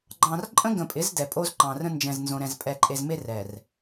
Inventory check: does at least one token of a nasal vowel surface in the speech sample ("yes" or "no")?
yes